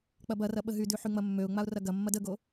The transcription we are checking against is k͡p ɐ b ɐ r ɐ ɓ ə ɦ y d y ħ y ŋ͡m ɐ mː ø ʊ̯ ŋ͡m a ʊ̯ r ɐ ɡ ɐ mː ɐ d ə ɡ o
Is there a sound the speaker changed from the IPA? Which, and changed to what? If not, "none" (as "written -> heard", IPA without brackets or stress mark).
none